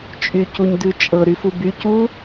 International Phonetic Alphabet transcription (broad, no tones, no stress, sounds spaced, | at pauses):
t͡ʃʼ y c u ɲ d ʉ t͡ʃʼ ɤ ɾ y f u b y c u